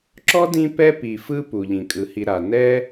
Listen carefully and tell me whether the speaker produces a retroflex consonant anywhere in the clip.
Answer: no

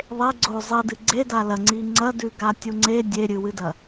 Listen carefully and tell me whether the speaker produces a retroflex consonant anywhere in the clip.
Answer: no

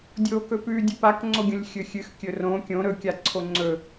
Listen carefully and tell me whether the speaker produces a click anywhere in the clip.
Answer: yes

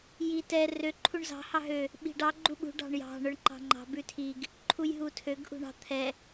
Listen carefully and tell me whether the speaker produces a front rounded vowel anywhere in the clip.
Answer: yes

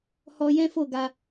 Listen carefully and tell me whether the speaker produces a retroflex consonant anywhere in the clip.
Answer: no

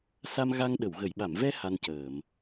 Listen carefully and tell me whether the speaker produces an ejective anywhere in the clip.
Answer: no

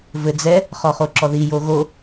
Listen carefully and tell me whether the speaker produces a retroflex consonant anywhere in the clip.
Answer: no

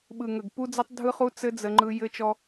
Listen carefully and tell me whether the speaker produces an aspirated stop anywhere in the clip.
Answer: no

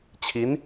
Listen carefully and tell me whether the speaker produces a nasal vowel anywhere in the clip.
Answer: no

